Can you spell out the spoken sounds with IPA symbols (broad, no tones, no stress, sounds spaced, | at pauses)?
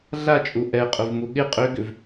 ɮ a t͡ʃʼ u ʔ ɛ qʼ ʊ v m u ɠ ɪ qʼ ø ɡ ʏ v